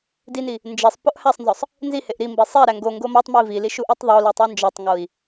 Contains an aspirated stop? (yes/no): no